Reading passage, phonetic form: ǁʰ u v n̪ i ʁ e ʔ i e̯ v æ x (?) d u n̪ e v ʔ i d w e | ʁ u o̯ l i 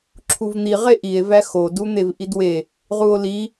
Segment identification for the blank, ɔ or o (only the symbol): o